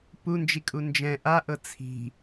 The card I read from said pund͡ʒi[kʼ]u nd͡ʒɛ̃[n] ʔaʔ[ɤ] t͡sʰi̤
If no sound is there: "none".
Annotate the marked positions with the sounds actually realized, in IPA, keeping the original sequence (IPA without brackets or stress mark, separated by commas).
kʼ, none, ɤ